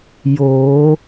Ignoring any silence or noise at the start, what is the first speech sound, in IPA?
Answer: j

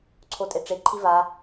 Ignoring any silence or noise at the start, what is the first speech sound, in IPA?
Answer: ǀʰ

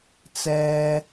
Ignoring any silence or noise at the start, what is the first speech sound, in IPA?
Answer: t͡s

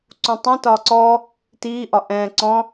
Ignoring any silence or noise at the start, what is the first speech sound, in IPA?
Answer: ǀ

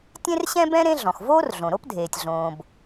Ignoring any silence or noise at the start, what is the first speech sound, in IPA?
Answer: tʲ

